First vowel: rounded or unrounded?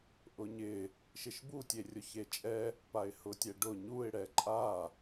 rounded